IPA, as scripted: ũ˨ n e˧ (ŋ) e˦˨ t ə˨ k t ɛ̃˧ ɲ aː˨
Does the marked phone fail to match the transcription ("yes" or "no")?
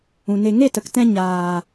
no